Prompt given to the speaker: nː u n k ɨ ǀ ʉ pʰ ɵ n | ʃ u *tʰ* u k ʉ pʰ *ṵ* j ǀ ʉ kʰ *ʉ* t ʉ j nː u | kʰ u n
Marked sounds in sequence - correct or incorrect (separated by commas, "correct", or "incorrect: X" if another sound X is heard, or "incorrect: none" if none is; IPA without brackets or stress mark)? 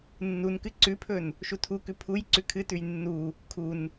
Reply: correct, incorrect: u, incorrect: ɨ